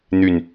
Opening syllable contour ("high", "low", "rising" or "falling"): low